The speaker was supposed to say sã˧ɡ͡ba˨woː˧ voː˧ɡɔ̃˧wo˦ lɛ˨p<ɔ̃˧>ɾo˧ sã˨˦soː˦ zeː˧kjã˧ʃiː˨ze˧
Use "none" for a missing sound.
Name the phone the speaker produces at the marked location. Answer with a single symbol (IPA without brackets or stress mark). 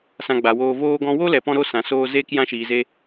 ɔ̃˧